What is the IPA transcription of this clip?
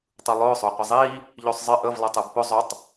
tˤ ɯ lˠ ʊː sˤ ʊː qʷ ə zˤ iː | ʎ ɵ sˤ zˤ ɪ ʔ ə v lˠ ɛ tˤ ɯ b p ʊ zˤ ʊ tˤ

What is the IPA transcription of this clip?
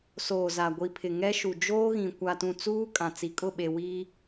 s oː˨ z a˨ ɡʷ i˨ pʰ ɪ˨ ŋ ɛ˦ ʃ u˨ d͡ʒ oː˦ ɣ ĩ˨ kʷ a˨ t ũ˨ t͡s uː˦ kʼ ã˨ t͡s i˨ kʼ ʊ˦˨ ɓ e˨ w iː˦

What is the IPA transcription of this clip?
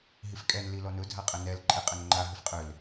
ɦ i f kʼ ɛ n l i l ɔ n ʊ dʱ a qʼ ɛ n ɛ l ǃʼ e qʼ ɛ n ŋ͡ǃ a ɦ ʏ f qʼ ʏ l

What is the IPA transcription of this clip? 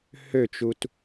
h ø t͡ʃ u t

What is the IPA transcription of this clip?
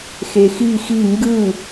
x e x i x i ŋ ɡ ɯ

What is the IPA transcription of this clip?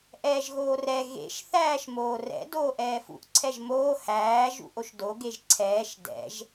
ʔ ɛː ʒ ɣ oː r ɛ ɣ ḛ ʃ θ æː ʃ m oː r ɛ̰ d oː ʔ ɛː f ṵ ʔ ǀʰ ɛ ʒ m oː h æː ʒ ṵ ʔ o ʃ d o ɡ e ʒ ǀʰ ɛː ʃ d ɛ̰ ʒ

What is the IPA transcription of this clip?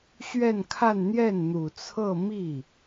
ɕ ɥ ɛ˥˧ n kʰ a˥˧ n n̪ j ɛ˥˩ n n̪ u˨˩ t͡sʰ ɤ˥˧ m i˥˩

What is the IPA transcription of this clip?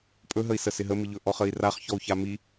pʼ ɵ ɦ ə i̯ s ə s ɪ ɦ ə m i ʎ ɵ ʔ ɔ χ ə i̯ r a χ ç ɔ u̯ ç a m i

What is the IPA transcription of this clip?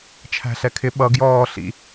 t͡ʃʰ æ̤ ɬ ɛ kʰ ɪ ɓ ʌ ɡ j ɔː ɬ ḭ

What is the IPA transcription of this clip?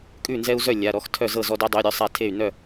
kʼ ʉ˥˩ n z ɛ˦ u̯ z œ˥˩ lʲ a˩˧˩ ɾ ɔ˥˩ x tʰ œ˥˩ z ɤ˥˩ z ɔ˦ d æ˦ dˤ ʉ˩˧˩ i̯ ɾʲ œ˥˩ sˤ a˥˩ tʰ e˥˩ y̯ n œ˥˩

